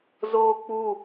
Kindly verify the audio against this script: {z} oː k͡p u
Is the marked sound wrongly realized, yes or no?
no